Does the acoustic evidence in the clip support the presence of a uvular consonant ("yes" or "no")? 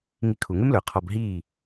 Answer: yes